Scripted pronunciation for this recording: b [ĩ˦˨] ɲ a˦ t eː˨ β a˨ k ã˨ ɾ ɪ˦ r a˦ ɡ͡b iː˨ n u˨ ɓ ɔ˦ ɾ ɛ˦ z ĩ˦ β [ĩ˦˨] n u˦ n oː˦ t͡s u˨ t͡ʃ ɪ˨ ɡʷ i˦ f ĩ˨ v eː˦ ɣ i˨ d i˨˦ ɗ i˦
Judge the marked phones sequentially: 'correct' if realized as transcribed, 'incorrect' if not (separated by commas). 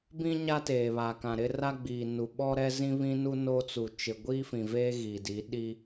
incorrect, incorrect